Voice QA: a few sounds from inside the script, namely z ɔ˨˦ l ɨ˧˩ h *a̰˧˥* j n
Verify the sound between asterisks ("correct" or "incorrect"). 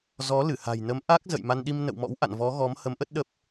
incorrect